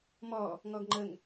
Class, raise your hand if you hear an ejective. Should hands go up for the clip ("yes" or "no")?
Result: no